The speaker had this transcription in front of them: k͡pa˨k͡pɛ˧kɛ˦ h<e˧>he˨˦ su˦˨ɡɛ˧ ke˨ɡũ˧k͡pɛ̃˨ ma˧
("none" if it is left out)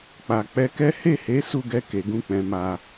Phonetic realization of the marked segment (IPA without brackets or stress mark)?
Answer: e˦˨